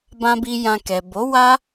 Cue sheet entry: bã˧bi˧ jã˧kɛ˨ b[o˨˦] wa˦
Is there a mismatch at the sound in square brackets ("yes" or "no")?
no